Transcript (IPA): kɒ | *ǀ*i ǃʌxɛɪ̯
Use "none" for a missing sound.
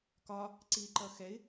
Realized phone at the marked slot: ǀ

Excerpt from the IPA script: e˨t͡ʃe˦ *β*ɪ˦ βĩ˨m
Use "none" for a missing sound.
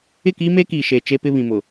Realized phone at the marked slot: p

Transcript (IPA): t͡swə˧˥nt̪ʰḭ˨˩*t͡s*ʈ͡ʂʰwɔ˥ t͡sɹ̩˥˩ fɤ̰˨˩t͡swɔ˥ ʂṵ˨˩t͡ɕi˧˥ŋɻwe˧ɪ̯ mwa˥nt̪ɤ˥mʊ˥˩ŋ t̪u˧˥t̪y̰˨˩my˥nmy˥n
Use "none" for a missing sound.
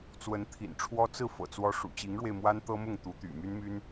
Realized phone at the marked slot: n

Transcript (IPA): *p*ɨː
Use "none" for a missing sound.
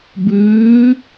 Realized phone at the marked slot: b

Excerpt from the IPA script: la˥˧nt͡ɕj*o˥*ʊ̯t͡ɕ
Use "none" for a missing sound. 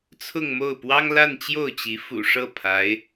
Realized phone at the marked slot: o˥˩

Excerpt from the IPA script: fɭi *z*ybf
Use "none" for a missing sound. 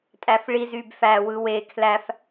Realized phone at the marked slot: z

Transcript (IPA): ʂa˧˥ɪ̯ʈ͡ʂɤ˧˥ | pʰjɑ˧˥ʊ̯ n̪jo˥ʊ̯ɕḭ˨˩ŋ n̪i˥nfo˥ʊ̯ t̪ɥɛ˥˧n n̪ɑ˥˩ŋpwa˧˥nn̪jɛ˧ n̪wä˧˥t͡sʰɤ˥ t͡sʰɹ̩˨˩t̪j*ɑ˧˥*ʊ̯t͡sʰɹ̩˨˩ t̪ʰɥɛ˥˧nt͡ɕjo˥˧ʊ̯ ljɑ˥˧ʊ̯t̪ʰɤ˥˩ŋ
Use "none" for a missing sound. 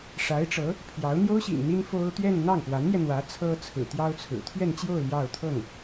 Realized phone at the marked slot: ɑ˥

